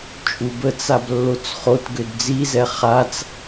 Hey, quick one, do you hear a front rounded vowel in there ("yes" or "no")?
yes